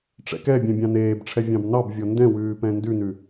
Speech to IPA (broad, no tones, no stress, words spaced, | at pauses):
ʈ͡ʂɛ̰kɛbʲɛ̃ bʲɑ̃neːbʈ͡ʂʰɛ vʲɑ̃bnɑbvʲɔ ndɛ̃wʉː pɛ̃ndʉnʉ